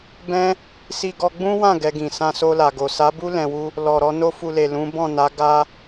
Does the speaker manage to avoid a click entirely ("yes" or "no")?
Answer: yes